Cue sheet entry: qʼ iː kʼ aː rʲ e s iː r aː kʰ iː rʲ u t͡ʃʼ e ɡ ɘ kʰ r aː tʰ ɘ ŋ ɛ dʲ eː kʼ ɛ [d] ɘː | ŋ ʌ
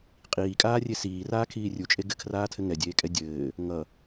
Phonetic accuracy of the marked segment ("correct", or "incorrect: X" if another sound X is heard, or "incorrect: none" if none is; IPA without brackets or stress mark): incorrect: dʲ